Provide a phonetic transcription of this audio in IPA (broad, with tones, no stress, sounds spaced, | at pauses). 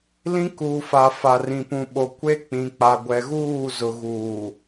l ĩ˦ k uː˨ f a˨ f a˨ r ĩ˨ p ũ˨ ɓ o˨ kʷ e˦ k͡p ĩ˨ k͡p a˨ ɡʷ ɛ˨ ɣ uː˦˨ z ʊ˨ ɣ uː˨